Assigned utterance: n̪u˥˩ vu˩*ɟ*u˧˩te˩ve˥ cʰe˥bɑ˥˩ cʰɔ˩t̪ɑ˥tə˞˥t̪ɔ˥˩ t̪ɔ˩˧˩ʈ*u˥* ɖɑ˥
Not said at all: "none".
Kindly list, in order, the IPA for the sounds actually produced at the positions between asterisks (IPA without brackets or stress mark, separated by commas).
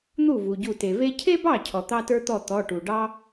ɟ, u˩